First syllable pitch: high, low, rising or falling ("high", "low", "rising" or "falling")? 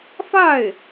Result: falling